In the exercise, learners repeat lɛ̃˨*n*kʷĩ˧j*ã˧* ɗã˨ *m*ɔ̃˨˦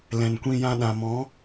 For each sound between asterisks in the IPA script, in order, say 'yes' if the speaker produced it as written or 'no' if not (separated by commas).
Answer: yes, yes, yes